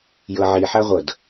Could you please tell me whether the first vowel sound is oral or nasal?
oral